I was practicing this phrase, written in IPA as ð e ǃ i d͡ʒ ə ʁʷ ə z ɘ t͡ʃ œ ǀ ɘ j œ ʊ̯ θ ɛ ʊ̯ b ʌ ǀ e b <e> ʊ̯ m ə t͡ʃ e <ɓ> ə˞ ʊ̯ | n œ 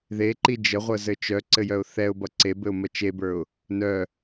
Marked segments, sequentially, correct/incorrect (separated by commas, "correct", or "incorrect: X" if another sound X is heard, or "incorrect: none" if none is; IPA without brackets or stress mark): incorrect: ɘ, incorrect: b